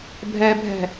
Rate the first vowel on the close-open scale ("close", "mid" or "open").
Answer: mid